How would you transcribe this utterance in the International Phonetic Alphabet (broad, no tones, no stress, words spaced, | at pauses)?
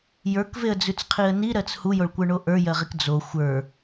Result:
jə˞kveə̯d͡zʉt͡sqʰiə̯ niɾɜt͡s hujoɭkʷə˞ɳo ʔə˞jɜʁik d͡zo xʷə˞